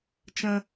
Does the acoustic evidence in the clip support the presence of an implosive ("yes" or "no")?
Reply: no